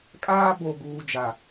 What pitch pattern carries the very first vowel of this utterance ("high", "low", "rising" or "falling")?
high